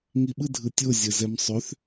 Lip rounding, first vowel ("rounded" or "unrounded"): unrounded